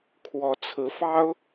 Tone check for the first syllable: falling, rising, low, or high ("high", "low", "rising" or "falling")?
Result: rising